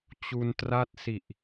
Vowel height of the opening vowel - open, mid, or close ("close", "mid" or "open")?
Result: close